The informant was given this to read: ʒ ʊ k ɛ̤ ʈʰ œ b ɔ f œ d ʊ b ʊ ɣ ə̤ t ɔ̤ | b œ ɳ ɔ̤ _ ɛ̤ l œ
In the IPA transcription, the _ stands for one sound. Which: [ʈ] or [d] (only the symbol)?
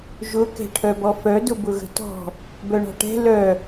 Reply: ʈ